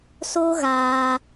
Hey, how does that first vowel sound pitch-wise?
high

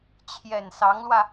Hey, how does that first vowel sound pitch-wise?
low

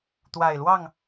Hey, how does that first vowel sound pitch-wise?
low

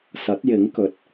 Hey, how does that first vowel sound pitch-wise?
rising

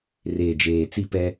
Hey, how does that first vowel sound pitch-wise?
low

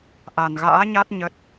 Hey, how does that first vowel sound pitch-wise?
low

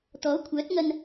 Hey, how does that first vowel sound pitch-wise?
rising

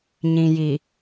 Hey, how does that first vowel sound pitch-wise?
low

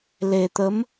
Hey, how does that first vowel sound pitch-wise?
low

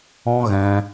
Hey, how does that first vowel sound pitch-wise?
high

